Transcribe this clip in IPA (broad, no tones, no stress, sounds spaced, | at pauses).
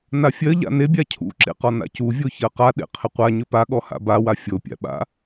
n a fʲ ɜ ʎ a̰ n e bʲ a cʰ ṵ ǁ ḛ q ɔ n a̰ c u vʲ o ç ɜ q a ɗ ḛ qʰ ɪ qʷ a ɲ ʏ p a ɠ ɔ h a̰ b a w a fʲ o pʲ a̰ ɓ a̰